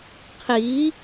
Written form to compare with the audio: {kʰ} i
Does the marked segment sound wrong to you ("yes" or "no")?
yes